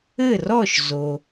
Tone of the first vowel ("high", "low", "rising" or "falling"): falling